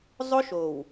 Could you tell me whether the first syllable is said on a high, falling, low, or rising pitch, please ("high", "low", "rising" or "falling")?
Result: high